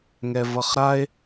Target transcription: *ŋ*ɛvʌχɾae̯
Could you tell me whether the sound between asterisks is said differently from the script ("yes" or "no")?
no